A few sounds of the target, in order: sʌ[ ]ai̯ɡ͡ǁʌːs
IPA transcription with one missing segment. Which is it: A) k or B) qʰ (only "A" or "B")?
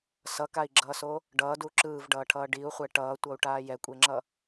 A